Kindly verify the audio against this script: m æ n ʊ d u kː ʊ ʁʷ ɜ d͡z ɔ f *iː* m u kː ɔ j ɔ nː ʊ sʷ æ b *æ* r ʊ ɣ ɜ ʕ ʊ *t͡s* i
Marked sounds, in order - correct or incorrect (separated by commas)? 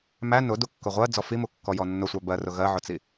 incorrect, incorrect, correct